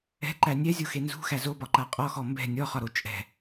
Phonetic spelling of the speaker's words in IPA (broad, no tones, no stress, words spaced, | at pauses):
ɛ̤ǃæ nʲɛzʲoxe nzṳxæ zobɒǃa qʼɔxɔ mbɛ̤ nʲɔχɒɾo t͡ʃʼɛ̤